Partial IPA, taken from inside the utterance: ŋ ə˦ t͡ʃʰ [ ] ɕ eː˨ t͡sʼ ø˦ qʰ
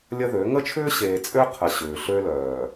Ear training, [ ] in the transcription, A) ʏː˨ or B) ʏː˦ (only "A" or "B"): B